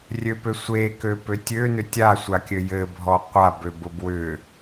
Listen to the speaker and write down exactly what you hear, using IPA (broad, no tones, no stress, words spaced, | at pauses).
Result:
rʲøpø sʷekøpø tʲønʏ tʲasʷakʲɘ jɘbʱɔ qʷabøbʊ bwʏ